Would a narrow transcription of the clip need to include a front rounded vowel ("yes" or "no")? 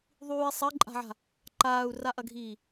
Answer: no